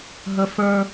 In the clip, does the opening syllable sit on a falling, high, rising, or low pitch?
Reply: high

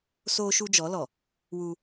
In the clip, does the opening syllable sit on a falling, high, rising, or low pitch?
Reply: high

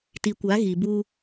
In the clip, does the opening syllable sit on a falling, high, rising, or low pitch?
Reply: low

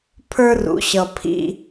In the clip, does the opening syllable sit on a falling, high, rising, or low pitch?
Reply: high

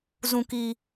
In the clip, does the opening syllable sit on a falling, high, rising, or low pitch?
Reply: low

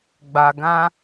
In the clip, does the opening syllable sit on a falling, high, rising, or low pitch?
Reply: low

